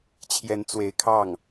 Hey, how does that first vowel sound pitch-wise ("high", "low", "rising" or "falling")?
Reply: rising